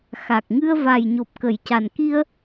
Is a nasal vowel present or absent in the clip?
absent